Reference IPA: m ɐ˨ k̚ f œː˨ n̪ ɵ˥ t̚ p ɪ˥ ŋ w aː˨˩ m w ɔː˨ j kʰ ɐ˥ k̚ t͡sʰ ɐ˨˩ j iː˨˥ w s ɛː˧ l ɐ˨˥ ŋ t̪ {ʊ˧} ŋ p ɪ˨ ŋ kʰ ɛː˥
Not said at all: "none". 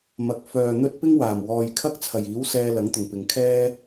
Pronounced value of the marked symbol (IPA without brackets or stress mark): ʊ˨˩